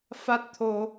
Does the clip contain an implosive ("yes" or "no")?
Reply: no